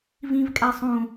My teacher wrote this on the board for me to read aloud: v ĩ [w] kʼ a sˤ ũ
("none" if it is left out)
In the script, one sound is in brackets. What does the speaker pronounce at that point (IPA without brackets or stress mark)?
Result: v